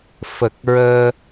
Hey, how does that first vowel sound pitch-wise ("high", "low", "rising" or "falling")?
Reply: low